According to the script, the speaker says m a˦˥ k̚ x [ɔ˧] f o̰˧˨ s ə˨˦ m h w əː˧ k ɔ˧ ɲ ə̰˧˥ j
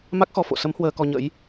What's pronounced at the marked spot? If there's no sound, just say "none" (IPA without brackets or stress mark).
ɔ˧